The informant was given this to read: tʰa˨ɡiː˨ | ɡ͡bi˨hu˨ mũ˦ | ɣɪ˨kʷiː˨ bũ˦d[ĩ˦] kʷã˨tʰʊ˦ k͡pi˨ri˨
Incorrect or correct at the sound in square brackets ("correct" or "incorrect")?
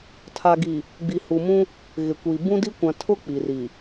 incorrect